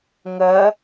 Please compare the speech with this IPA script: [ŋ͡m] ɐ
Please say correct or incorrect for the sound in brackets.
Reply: incorrect